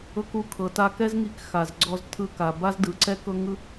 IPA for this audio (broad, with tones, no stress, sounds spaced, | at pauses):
ɤ˧ k u˧ kʰ ɤ˩ t a˧ k ɛ˥ z ŋ i˧ k x a˩ z ɡ͡ǀ ɔ˧ z tʰ ɯ˧ k a˩ b a˥ z d ɯ˩ ǀ ɛ˥ k ɤ˥ ŋ ɯ˥